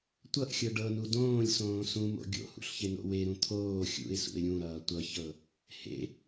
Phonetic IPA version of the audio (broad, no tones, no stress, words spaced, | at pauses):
tʷʌʔxʲɤ ɖɤnu dõːlʲsõː sũmo̰ ɡʲo̰hṵɬçeno̰ weɾũ t̪ʰoː xʲṵɪ̯sṵɪ̯ ɾʲũɾʌː tʷʌçɤ | hḛ